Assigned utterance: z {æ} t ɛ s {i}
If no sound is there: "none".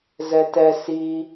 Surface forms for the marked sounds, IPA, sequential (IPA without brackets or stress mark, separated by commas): ɛ, i